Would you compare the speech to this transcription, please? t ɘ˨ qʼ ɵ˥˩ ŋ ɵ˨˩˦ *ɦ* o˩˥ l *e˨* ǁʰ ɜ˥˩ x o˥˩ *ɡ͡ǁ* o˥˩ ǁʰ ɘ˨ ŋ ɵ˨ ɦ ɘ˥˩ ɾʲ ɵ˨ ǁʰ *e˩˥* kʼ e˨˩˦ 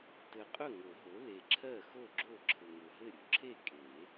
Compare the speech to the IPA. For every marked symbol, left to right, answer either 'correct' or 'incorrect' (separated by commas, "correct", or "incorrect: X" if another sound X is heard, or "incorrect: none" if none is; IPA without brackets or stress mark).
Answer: correct, correct, correct, incorrect: e˥˩